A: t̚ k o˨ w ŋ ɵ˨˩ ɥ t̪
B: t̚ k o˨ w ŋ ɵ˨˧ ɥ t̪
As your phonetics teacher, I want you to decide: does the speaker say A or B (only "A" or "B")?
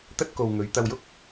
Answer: B